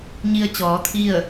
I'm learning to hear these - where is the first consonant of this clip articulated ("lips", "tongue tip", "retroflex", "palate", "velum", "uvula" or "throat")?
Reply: palate